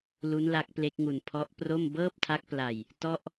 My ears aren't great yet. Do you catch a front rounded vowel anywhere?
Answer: no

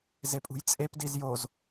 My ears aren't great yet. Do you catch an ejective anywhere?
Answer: yes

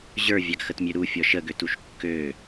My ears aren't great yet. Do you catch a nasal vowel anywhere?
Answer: no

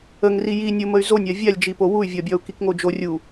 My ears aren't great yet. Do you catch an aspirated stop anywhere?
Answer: no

